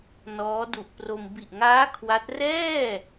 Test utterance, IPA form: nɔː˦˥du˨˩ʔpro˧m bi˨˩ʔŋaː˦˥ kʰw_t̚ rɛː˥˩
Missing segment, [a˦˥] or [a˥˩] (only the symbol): a˦˥